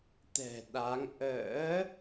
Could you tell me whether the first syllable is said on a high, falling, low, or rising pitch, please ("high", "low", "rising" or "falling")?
low